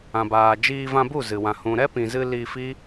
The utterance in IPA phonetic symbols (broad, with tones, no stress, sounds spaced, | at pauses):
ã˨ b aː˨ d͡ʒ iː˧ v ã˧ b u˦˨ z ɨ˨ w ã˨ h ũ˨ ɾ ɛ˦ p ĩ˨ z ɨ˧ l i˧ f i˦